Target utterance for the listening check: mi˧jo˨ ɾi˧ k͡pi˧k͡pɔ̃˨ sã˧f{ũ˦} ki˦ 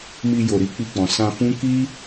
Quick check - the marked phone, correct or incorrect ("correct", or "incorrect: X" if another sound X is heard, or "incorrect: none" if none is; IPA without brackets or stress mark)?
correct